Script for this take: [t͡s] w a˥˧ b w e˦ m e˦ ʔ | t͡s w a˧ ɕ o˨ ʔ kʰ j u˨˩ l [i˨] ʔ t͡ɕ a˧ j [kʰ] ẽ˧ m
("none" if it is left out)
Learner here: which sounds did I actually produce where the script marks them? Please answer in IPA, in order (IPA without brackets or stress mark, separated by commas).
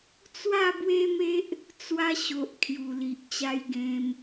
t͡s, i˨, ɡ